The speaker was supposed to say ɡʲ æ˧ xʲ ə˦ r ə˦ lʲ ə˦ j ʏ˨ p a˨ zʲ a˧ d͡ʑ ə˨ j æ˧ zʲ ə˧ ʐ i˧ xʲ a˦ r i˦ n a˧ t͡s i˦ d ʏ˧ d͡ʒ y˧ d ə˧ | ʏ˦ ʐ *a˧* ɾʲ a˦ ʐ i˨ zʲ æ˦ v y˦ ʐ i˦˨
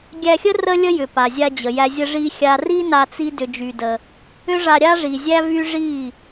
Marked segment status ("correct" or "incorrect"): correct